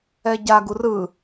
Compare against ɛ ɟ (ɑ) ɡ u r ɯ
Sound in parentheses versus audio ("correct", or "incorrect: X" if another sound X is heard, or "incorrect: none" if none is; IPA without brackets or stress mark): incorrect: a